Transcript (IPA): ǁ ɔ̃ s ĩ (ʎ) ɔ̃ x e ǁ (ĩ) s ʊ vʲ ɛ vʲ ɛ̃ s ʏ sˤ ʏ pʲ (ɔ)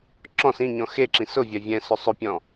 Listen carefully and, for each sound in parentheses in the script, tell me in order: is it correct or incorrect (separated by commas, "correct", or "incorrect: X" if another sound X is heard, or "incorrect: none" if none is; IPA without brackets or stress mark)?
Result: incorrect: ɲ, correct, incorrect: ɔ̃